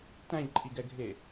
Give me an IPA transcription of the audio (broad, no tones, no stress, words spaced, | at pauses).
tæ̃ʎǃʼiɡɛɡʱe